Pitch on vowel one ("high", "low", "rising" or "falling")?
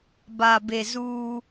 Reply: low